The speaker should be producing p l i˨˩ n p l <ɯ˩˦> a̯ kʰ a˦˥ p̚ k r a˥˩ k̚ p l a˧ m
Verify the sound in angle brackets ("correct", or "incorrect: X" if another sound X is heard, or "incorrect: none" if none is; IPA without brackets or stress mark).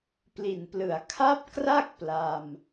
incorrect: ɯ˨˩